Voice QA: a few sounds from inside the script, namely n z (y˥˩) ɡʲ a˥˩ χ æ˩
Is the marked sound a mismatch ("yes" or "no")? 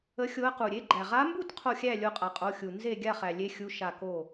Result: yes